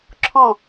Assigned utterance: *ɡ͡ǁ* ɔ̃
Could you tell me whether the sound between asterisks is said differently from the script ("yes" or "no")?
yes